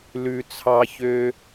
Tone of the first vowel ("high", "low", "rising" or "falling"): high